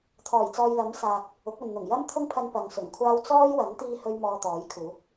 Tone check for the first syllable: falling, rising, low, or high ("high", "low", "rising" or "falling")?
low